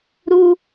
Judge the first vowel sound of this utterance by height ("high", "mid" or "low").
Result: high